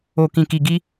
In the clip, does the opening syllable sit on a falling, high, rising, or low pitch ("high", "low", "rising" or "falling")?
low